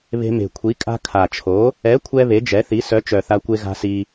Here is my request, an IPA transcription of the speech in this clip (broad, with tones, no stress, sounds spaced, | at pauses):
β e̤˧ m e̤˨˩ kʷʰ i˨˥ kʼ a̤˧ kʰ a˨˩ t͡ʃʰ o˨˥ | ɛ˨˥ kʷʰ ɛ˧ β e˨˥ d͡ʒ ɛ˨˥ θ i˨˥ s œ˨˥ t͡ʃ œ˨˩ θ a˧ kʷ e˧ ɣ a̤˧ s i˧